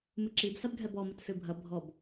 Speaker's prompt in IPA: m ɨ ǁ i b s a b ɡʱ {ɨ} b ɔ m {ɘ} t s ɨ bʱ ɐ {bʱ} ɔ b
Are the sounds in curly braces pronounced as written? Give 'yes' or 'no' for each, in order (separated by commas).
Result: no, yes, yes